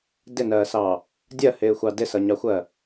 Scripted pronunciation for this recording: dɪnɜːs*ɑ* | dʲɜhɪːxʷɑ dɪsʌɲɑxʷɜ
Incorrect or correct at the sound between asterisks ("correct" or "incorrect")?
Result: correct